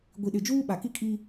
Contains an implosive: yes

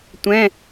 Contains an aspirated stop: no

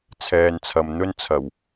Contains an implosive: no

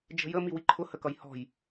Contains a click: yes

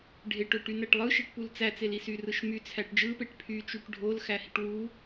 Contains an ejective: no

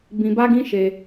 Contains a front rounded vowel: no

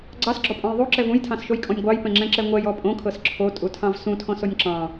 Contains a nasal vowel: yes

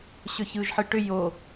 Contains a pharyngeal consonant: yes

